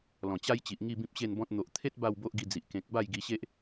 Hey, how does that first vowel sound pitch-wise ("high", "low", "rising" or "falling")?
low